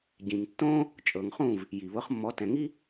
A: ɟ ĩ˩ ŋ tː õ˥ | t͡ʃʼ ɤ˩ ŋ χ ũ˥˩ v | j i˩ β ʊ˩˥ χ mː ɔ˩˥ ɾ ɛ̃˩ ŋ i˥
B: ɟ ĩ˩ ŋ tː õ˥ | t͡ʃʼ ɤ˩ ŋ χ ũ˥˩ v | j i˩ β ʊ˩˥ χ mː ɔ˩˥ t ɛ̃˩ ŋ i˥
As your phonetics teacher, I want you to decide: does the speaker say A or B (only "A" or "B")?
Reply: B